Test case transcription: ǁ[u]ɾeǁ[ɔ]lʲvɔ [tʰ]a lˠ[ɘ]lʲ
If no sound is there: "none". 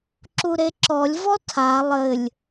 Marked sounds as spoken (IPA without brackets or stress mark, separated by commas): u, ɔ, tʰ, ɘ